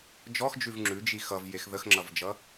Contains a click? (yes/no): yes